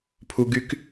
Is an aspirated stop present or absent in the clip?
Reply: present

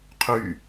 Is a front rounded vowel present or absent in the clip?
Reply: present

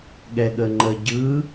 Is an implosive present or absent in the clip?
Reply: present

